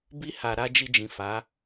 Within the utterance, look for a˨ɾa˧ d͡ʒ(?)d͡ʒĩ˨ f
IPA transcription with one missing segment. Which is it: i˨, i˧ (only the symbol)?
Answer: i˧